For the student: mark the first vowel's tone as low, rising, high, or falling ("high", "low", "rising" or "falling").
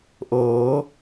rising